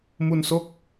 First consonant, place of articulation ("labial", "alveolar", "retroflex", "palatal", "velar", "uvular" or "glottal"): labial